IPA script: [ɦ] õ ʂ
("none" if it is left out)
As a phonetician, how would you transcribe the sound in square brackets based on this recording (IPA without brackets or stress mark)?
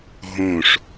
ɦ